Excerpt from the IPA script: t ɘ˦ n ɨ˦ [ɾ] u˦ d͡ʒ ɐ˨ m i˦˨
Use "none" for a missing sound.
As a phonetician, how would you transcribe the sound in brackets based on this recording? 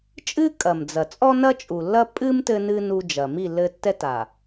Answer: n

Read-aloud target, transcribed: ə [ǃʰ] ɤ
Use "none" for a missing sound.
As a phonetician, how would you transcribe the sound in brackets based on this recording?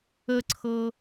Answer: ǀʰ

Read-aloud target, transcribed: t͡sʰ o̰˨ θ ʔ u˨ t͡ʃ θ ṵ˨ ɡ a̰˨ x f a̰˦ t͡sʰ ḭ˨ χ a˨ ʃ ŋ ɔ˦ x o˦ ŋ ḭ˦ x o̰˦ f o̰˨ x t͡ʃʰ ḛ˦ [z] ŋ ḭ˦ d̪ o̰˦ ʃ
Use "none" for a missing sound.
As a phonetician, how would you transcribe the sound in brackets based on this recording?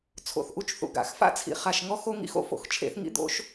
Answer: θ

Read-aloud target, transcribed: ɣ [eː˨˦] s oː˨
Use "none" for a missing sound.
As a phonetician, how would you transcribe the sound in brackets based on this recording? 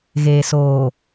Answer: eː˨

